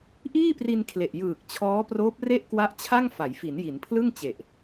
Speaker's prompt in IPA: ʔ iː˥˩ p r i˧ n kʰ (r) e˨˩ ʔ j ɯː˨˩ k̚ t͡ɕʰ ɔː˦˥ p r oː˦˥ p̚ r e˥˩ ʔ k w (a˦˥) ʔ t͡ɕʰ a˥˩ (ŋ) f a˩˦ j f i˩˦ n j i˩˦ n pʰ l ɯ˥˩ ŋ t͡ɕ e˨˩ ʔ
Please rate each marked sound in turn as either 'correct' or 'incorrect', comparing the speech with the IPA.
incorrect, correct, correct

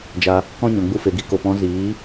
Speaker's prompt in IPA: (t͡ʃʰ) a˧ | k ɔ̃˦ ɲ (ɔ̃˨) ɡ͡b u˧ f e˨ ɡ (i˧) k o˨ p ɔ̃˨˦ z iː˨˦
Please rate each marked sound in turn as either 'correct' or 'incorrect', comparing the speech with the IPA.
incorrect, correct, incorrect

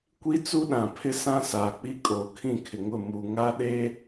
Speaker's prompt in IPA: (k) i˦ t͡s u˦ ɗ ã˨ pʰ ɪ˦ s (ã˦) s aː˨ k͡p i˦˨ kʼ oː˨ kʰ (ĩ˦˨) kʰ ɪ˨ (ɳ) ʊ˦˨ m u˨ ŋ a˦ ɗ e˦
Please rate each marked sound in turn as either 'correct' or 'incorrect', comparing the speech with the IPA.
incorrect, correct, correct, incorrect

